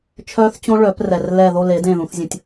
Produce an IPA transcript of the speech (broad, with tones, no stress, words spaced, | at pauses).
t͡ʃʰœː˦˥θt͡ɕõ˦˥ ɭœ˨˩˦prɛ˨r lɛ˦˨ ðo˦˨le˨˩˦ dẽ˦˨ðũ˨˦θzʲə̃˨˦tʲ